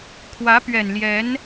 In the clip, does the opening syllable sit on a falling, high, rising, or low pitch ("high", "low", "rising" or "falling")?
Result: rising